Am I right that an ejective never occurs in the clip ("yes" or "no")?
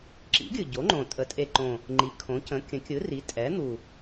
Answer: no